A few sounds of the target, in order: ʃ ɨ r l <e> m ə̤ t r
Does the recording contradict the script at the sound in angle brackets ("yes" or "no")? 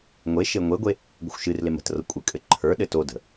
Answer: no